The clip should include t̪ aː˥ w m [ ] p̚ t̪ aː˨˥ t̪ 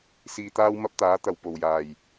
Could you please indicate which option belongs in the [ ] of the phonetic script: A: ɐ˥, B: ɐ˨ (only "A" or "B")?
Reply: A